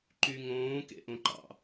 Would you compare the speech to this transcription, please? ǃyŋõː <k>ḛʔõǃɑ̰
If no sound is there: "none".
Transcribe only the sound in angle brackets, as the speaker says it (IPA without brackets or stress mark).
k